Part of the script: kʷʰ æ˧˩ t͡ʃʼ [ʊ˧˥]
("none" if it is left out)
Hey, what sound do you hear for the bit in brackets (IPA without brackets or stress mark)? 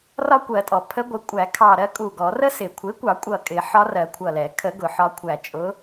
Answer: ʊ˧˥